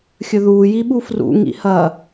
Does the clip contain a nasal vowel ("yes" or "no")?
no